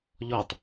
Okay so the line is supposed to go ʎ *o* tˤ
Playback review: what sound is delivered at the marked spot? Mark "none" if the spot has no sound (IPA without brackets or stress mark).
ɔ